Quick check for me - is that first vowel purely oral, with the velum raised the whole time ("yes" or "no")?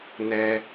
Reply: yes